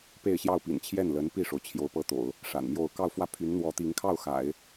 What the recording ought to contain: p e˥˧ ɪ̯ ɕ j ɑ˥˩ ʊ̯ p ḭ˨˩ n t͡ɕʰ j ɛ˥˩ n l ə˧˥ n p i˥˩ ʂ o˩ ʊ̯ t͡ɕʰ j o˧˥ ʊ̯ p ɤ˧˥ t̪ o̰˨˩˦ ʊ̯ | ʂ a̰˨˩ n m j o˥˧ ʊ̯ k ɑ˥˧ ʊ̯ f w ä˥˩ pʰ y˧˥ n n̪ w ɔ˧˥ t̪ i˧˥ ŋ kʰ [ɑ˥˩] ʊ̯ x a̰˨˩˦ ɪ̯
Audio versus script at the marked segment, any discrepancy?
no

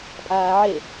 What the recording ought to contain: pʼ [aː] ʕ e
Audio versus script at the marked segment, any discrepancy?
no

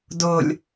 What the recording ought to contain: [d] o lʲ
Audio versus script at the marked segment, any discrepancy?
no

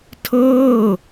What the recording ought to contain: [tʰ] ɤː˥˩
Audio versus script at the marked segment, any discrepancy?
no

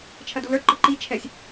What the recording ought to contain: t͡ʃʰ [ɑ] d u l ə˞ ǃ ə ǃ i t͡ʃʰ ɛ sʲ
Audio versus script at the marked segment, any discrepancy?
yes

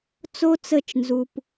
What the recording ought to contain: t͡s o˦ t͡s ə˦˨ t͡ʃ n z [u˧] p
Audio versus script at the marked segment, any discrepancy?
no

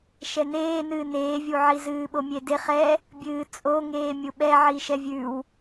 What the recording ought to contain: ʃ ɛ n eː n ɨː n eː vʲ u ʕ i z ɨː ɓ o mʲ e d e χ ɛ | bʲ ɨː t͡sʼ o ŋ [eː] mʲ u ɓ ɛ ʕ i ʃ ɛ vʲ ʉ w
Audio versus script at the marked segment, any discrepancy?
no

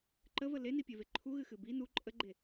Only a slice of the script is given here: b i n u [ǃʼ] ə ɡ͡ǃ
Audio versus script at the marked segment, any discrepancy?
no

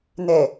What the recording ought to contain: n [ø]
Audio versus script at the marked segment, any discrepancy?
yes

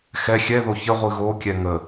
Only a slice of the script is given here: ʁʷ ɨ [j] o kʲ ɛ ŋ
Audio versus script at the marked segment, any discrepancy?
yes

